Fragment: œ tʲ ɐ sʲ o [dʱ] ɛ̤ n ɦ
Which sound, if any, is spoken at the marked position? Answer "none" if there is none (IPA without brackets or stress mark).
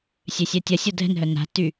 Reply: dʱ